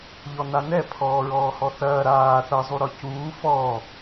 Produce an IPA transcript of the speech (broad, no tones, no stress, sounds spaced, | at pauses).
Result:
ʎ ɔ n a n ɛ pʰ ɔː ɹ ɔː h ɔ θ ɐː ɾ aː θ ɐ zˤ u ɾ ɔ c uː f ɔ